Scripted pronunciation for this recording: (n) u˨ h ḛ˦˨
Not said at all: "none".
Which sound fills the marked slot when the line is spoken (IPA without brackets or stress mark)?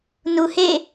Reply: n